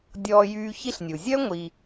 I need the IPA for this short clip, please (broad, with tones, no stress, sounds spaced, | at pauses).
dʲ ɔː˦ j yː˦ ç i˥ ɬ nʲ u˩ zʲ œ˥ ŋʷ i˨